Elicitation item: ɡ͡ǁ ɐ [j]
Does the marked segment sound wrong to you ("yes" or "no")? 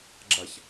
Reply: yes